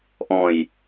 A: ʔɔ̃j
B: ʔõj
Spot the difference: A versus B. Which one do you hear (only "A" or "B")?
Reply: A